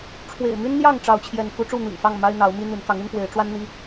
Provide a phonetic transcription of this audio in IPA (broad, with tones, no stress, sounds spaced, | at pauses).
ʈ͡ʂʰ w ḛ˨˩ ɪ̯ m y˦ n n̪ j ɑ˥˨ ŋ ʈ͡ʂ ɑ˥˨ ʊ̯ t͡ɕʰ j ɛ˥˨ n k u˦ ʈ͡ʂ u˥˨ n̪ ḭ˨˩ ŋ f ɑ˥˨ ŋ m a˦ ɪ̯ n̪ ɑ˨˦ ʊ̯ m i˦ n̪ y˨˦ n k ɑ˨˦ ŋ y˦ n f w e˨˦ ɪ̯ ʈ͡ʂ w a˦ n n̪ i˦